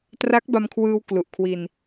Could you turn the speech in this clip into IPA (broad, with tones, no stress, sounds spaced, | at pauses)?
t r a˦˥ k̚ b a˧ m kʰ w ɯː˧ w k l u˨˩ ʔ kʰ w i˧ n